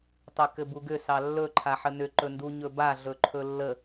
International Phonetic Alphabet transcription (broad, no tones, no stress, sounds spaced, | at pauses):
tˤ ə k ɘ b u ɡ ʏ s ɑ lː ɵ ǃʰ a ħ ə n ʏ ǃ ɵ n d u ɲ ɵ b a ɮ ɵ ǃʰ ɵ lː ə